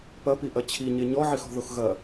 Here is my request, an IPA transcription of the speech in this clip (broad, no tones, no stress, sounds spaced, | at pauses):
p ɐ p i ʔ ɐ t͡ɕʰ i ɲ e ɲ ɔ ʕ i x ɔ̤ ð o x ɣ ɐ